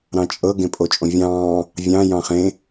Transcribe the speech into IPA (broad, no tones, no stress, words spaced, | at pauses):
ɾɑ̃t͡ʃʼɤ ɡẽpʼot͡ʃʼõvʲɑ̃ː | vʲɑ̃ jɑ̃χẽ